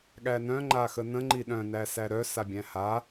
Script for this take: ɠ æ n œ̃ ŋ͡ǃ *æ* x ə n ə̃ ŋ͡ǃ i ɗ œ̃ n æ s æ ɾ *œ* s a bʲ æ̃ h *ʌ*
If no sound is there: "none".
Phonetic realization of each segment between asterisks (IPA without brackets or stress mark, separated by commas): a, œ, a